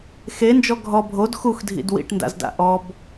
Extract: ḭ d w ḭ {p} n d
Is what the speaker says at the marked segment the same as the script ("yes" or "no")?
no